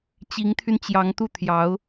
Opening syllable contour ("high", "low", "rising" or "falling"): rising